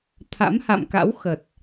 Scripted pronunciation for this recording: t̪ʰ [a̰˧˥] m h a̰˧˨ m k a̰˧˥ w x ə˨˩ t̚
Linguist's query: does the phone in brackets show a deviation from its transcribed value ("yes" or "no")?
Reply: no